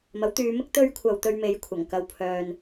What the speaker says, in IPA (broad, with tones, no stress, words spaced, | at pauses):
mɐ˨˥wt̪yː˨˧mɪ˥k̚ t̪ɵ˥ɥkʷʰɐ˧w t̪ɵ˧ɥme˨˧jkʷʰɐ˨˩ŋ kɐ˧w pʰœː˧n